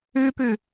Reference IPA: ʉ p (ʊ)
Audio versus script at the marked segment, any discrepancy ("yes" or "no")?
yes